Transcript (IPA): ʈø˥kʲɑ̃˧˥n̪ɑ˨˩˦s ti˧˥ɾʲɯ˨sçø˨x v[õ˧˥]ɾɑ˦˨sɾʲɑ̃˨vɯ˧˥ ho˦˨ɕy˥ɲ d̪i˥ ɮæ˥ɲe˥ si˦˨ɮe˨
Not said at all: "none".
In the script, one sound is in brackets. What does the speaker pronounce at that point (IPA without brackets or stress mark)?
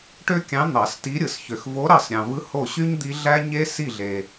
o˧˥